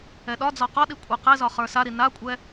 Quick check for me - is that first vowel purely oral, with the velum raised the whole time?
yes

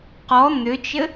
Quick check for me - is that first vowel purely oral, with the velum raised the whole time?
yes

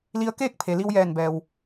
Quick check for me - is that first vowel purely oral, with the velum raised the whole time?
yes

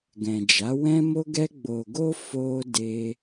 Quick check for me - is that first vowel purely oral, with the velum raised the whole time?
no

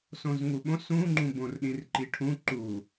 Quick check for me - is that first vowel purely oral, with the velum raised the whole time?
no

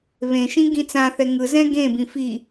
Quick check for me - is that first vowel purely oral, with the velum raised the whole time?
no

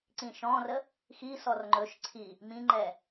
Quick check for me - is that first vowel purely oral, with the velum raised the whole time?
no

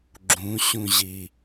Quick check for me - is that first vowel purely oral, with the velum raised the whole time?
no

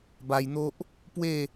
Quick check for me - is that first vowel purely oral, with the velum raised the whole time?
yes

